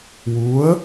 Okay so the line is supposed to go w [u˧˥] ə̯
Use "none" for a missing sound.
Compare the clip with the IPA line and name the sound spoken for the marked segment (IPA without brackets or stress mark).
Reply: u˧˥